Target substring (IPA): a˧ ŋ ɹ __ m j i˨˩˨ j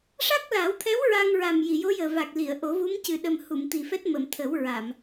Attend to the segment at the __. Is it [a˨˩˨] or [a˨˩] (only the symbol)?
a˨˩